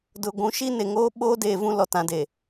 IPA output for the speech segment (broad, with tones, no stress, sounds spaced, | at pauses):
d ʊ˨ ɡʷ ũ˨˦ ʃ i˦ n e˨ ŋ oː˦ ɓ oː˦ d eː˨ v ũ˦ l ɔ˨ t ã˨ d e˨